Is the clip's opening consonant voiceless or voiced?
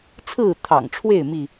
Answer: voiceless